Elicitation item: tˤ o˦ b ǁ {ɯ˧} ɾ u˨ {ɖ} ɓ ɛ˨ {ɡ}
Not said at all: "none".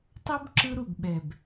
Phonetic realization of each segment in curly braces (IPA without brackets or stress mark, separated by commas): ɯ˧, ɡ, b